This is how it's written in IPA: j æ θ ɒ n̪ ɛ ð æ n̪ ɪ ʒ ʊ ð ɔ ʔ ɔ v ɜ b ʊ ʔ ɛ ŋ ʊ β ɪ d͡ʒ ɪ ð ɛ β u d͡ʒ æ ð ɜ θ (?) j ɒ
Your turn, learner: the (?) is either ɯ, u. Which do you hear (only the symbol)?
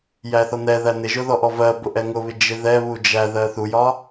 u